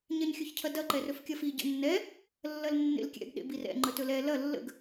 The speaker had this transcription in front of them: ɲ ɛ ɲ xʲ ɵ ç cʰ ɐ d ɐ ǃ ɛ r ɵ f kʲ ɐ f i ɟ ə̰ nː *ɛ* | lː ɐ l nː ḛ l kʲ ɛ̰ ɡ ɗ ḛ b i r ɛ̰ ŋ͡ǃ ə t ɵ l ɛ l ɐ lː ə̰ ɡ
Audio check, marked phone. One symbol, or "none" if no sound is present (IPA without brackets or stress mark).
ɛ